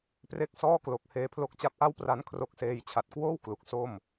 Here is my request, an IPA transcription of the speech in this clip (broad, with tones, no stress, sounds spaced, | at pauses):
p r e˦˥ k̚ s ɔː˥˩ k l o˨˩ k̚ h eː˧ pʰ l o˦˥ k̚ t͡ɕ a˦˥ p̚ ʔ a˥˩ w p r a˦˥ n kʰ r o˦˥ k̚ s eː˧ j t͡ɕʰ a˨˩ t̚ k w oː˥˩ w k l u˨˩ k̚ s o˥˩ m